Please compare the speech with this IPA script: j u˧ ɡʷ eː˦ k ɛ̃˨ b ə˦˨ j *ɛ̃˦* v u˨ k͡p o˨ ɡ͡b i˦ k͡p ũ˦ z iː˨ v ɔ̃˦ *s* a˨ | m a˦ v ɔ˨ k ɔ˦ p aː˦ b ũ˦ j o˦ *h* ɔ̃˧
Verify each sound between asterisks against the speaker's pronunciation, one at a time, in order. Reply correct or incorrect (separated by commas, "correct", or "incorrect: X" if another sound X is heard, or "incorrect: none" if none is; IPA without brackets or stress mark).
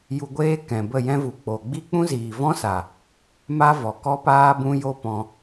correct, correct, incorrect: p